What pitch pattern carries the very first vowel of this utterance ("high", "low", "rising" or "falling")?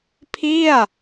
falling